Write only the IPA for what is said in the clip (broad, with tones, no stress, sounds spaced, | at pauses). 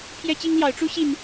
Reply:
pʰ j ɛ˦ t͡ɕ i˦ ŋ l j ɑ˨˦ ʊ̯ ʈ͡ʂ u˦ ɕ i˨˩ n